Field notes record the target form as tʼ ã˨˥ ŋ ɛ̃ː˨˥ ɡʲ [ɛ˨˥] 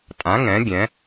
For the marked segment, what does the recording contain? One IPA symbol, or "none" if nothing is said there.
ɛ̃˨˥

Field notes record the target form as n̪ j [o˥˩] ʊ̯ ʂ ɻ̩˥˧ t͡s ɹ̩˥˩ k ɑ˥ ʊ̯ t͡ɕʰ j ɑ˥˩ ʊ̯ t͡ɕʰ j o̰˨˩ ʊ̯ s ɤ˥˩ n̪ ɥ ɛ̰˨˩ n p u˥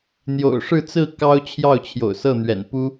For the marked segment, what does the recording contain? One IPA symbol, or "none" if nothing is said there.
o̰˨˩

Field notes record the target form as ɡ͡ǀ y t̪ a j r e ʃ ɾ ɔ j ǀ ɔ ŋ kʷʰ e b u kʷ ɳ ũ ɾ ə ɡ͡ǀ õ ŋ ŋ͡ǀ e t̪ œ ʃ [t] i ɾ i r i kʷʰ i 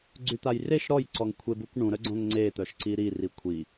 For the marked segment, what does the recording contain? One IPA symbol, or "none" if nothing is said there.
ǀ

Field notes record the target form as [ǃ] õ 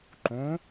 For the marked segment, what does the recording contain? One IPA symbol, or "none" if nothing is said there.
ǃ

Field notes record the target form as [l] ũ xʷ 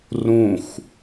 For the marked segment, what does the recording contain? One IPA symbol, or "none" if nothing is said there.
r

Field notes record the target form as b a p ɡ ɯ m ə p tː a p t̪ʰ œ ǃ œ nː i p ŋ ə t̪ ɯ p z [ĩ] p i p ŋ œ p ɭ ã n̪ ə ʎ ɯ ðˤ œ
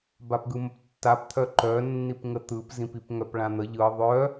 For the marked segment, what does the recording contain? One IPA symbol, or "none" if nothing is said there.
ĩ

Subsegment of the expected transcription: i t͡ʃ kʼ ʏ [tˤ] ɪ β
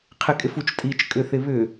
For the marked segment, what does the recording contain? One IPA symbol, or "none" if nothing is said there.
θ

